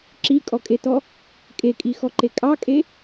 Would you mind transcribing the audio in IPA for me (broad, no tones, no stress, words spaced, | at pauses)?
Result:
ǁikʼɔkʼetɔ | kʼekʼixɔǃe kʼɑkʼe